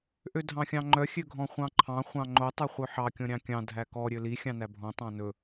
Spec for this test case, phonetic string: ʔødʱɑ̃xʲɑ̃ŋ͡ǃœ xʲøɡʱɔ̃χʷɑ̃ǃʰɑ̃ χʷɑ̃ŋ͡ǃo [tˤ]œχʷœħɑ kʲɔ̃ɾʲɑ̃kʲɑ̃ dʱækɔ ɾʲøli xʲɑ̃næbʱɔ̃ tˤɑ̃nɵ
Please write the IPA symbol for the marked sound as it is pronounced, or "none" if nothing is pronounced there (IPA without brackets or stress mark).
tˤ